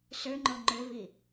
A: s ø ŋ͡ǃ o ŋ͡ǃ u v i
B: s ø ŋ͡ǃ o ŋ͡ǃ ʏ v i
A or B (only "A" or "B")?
B